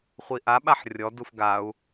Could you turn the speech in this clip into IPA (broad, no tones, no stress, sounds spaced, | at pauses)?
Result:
χʷ i ʔ a ɓ a ħ rʲ ɔ d u f ɡ a u̯